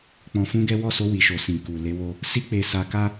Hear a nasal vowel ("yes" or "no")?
yes